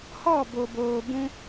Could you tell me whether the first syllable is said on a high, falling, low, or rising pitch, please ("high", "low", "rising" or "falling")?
falling